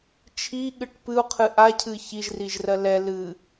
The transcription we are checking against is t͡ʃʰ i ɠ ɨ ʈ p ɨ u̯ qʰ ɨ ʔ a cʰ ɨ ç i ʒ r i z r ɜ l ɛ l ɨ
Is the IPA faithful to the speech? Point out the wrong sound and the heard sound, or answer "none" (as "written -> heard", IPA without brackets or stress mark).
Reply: z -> ʒ